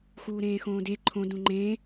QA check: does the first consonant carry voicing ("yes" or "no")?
no